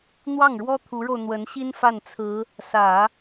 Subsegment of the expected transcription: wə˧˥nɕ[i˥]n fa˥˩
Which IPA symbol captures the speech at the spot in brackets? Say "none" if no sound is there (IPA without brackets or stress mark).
i˥